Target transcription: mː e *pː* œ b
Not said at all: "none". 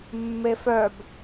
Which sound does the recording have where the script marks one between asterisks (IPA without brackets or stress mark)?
f